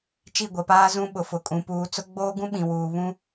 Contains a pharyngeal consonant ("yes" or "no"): no